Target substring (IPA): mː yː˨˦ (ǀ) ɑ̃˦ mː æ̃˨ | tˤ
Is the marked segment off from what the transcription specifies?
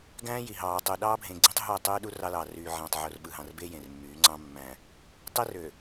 yes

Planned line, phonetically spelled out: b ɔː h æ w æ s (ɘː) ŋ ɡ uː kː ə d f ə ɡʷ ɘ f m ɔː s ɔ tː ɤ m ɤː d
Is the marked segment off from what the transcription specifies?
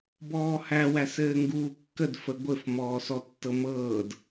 no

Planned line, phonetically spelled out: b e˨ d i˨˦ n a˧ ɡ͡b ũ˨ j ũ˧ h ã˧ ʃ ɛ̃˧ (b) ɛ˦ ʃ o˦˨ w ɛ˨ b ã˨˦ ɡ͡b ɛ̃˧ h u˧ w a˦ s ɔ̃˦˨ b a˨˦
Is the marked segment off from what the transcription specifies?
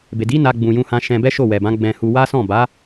no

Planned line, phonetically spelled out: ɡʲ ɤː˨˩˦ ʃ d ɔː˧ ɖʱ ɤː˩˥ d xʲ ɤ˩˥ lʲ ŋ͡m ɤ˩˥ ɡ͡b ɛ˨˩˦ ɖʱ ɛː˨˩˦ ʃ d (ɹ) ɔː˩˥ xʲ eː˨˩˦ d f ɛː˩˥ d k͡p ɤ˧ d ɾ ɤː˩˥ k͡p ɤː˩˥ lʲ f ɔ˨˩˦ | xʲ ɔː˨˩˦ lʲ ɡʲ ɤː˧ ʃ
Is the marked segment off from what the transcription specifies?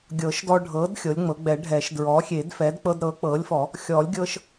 no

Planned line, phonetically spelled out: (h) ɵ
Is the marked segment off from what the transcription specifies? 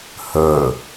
no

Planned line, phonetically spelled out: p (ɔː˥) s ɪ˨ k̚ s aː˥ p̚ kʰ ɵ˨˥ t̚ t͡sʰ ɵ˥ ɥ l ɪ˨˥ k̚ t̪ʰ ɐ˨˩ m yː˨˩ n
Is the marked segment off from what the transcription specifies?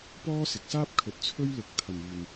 no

